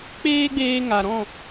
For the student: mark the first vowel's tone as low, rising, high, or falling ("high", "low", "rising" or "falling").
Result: high